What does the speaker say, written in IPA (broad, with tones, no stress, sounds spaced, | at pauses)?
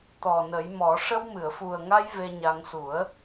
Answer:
t̪ ɔ˨˩ n ə˨˩˦ j m ɔ˨˩˦ ʂ ə˧ w m ɨ˨˩˨ ə̯ f u˨˩ ə̯ ŋ a˧ j v e˧ ɲ a˧ ŋ s u˨˩˦ ə̯